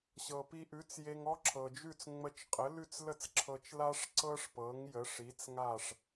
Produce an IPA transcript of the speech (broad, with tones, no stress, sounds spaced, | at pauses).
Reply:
ɕ ɤ˩ p i˧ ʔ ʉ˩˥ t͡s j e˧ ŋ ɔ˥ ǁʰ ɤ˩ d͡ʒ ʉ˥˩ t͡s ŋ͡m ə˧ t͡ʃ qʼ ə˩˥ l ʉ˥˩ t͡s l ə˥˩ t͡s ǁʰ ɤ˧ t͡ʃ l a˥ ʂ ǀ ɤ˥ ʂ p ɤ˩˥ ŋ j ə˩˥ ʂ i˩˥ t͡s ŋ a˥˩ ʂ